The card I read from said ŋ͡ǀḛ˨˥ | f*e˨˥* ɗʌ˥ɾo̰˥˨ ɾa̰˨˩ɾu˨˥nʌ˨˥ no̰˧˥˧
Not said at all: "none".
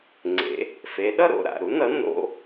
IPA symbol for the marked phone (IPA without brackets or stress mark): e˨˥